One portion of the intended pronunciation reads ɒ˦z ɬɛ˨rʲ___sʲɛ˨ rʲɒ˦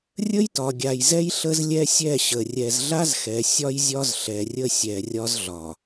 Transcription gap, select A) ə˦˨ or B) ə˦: A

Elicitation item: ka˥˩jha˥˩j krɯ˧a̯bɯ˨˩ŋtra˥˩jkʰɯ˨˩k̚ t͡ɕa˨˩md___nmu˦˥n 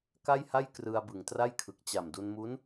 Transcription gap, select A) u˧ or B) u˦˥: A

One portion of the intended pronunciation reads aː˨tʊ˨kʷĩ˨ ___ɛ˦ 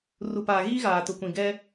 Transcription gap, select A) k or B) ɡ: B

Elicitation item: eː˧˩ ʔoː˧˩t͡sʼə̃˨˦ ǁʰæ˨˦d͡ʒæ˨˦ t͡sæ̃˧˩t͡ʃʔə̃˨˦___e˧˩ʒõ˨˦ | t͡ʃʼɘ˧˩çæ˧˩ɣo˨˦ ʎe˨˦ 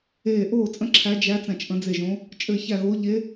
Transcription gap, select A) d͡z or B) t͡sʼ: A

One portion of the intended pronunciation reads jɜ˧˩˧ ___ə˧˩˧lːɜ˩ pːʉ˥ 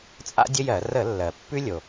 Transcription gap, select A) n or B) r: B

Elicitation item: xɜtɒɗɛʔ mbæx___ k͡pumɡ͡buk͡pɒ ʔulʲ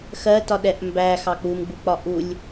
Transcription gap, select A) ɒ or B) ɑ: B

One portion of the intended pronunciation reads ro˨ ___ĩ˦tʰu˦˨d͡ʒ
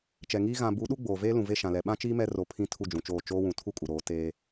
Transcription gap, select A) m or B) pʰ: B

